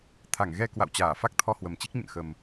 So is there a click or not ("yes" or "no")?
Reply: no